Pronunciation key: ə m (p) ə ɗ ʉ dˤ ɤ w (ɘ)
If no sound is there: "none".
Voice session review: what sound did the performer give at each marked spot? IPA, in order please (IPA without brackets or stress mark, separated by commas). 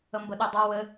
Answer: b, ɘ